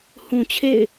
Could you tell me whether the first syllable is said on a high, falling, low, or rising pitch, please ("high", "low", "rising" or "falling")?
low